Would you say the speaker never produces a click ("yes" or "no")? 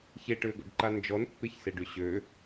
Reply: no